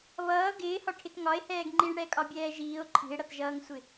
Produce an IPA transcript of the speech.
β ʌː ɡ ɪː h ɒ ʈʰ ɪ t ŋ ɒ e̯ h ɛː ɡ ŋ͡ǃ i ɳ ɽ ɛ kʼ ɒ bʲ ɛː ʒ iː o̯ ǃʰ i̤ e̯ ɽ ʌ t ʒ ʌː ŋ sʷ ɪ

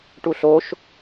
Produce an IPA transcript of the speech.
ʈ u ɬ o ʃ

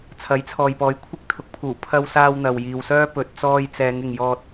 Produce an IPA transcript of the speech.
t͡sʰ ɐ˨˥ j t͡sʰ ɔː˨ j p ɔː˨˧ j kʷʰ ɪ˥ k̚ t̪ʰ ʊ˨˥ k̚ pʰ uː˨˩ pʰ ɐ˧ w s aː˧ w n̪ ɐ˨ w j iː˨ w s œː˥ p ɵ˨ t̚ t͡s ɔː˧ j t͡s ɛː˨˧ ŋ ɪ˨ ŋ j ɔː˧ t̚

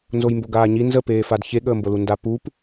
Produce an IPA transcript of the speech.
n z o j m b o ɡ aː ɲ i n z ə p eː f a d ç e ɠ əː m b o l u n d a p u p

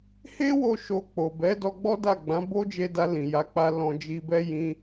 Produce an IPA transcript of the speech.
h e˦ w o˧ ʃ o˧ k͡p o˨ b ɛ˨˦ d ɔ˧ ɡ͡b ɔ˦ d a˦˨ ɡ͡b ã˨˦ b o˦ d͡ʒ e˧ d a˧ l ĩ˨ j a˨˦ k͡p a˧ l ɔ̃˨ d͡ʒ i˨ b ɛ˧ j ĩ˧

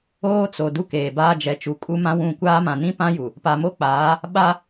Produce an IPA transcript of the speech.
oː˦ t͡s o˨ d u˦ k eː˨ b aː˦ d͡ʒ ɛ˨ t͡ʃ u˨ kʼ u˦ m ã˦ w ũ˦˨ kʷ aː˦ m ã˨ n ĩ˦ p ã˦ j u˨ | p a˨ m o˦ k͡p aː˨˦ | ɓ a˦

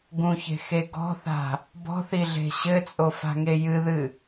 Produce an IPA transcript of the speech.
ɡ ũ ç e̤ x e ɡ ɔ̤ θ a̤ | b ɔ̤ θ i ɮ e̤ ɕ ɘ t͡sʼ o f a̤ ŋ e j ɨ ð ɨ

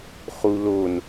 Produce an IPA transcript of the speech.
χ u l o n

